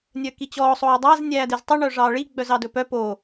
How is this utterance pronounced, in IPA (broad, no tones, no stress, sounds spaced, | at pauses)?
nʲ œ k i t͡ɕ ɔː sˤ oː dˤ æ z nʲ æː d e z tˤ ɵ ɳ œ ʐ ɑː ɭ i ɡ͡b œ z ɑ d ɵ p œ p o